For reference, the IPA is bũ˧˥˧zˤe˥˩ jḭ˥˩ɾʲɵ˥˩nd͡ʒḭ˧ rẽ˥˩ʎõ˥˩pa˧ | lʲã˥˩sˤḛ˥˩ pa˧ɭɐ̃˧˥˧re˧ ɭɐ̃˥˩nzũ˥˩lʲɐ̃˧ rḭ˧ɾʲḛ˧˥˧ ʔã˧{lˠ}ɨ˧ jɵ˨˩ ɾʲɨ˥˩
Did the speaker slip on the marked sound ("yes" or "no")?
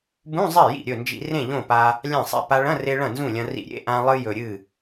no